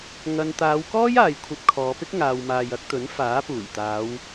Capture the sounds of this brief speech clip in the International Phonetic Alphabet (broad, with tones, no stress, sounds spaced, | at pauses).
ŋ ɐ˧ n t̪ aː˨˧ w k ɔː˥ j aː˨ j kʷʰ ɐ˧ p̚ kʰ ɔː˨˧ p ɪ˥ k̚ ŋ aː˨ w m aː˨ j ɐ˧ k̚ t̪ ɵ˨˥ n f aː˨˥ p uː˨˩ j t̪ aː˨˧ w